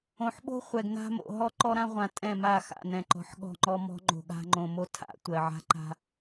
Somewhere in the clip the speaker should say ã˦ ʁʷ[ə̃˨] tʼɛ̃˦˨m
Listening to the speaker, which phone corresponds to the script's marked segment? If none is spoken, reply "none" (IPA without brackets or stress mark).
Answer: ã˨